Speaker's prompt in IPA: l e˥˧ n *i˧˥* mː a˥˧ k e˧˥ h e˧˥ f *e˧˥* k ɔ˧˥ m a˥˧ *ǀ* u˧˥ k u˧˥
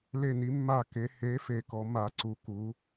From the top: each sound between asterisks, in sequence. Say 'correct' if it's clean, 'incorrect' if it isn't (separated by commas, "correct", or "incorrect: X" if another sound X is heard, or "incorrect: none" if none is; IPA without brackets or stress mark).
correct, incorrect: e˥˧, correct